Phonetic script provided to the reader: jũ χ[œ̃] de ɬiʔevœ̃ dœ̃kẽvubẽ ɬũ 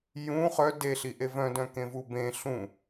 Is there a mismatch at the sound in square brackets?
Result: yes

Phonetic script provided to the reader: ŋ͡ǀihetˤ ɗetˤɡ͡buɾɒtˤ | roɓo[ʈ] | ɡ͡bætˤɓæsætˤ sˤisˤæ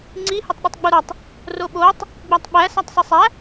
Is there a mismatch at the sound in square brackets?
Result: yes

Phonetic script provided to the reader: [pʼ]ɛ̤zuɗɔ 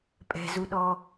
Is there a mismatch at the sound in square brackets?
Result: no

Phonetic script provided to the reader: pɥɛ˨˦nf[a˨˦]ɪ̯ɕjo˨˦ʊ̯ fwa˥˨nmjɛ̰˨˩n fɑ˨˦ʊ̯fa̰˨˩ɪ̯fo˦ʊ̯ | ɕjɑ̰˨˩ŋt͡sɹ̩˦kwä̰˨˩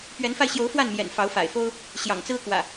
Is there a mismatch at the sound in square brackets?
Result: yes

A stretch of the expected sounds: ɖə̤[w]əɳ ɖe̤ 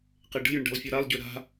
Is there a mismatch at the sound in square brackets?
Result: yes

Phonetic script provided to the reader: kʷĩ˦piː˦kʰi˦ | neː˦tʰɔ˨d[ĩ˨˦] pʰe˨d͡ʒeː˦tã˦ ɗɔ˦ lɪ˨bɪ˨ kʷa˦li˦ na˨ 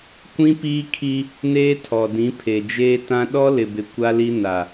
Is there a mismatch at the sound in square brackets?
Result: no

